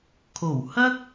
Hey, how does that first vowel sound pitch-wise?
low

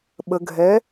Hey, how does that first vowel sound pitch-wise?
low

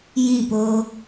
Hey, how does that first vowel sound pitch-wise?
falling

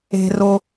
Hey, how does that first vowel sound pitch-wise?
low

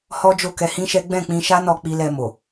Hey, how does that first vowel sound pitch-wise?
high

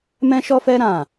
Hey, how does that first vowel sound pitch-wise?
high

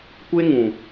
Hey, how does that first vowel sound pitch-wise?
high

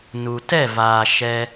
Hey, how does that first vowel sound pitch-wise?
low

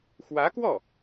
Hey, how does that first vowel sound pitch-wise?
rising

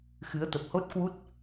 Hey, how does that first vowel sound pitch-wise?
rising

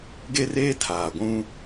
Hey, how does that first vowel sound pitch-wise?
high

